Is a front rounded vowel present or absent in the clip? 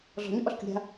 present